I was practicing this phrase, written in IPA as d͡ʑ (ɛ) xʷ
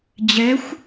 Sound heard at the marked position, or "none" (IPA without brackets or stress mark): ɛ